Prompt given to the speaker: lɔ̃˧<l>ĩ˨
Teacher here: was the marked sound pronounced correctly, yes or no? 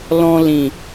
yes